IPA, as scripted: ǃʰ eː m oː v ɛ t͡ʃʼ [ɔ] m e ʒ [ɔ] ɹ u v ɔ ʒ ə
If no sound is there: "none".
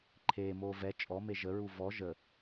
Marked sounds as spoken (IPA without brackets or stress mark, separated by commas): ɔ, ə